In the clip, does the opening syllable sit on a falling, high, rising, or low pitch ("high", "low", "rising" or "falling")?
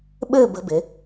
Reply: falling